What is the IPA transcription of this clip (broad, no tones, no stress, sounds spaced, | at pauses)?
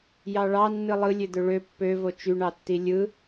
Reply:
j ɑ ɭ ɑ nː ɯ lˠ ɯ lʲ ø d̪ ø ɭ ø pː ø v o t͡ʃ y ɳ ɑ tː i lʲ ɯ